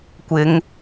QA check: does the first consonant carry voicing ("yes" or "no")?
no